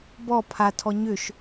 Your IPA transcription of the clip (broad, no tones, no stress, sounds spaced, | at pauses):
b ɔ pʰ a tʰ ɔ ɲ ʏ ʃ